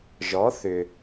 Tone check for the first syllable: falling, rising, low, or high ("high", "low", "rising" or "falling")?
rising